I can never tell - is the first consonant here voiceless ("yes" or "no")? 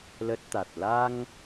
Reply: no